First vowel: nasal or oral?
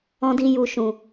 nasal